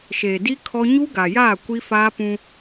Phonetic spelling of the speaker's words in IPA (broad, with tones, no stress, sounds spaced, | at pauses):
ʃ eː˨ d i˦ kʰ ɔ˦ ɲ u˦ ɡ a˨ j aː˦˨ kʷ i˦ f aː˦ p ũ˦